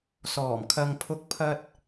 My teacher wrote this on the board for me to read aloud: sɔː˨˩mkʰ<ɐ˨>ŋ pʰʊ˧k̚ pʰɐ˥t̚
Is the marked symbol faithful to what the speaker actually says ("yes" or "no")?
yes